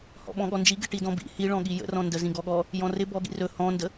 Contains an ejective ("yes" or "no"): no